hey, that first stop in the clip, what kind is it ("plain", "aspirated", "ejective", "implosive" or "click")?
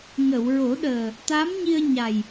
implosive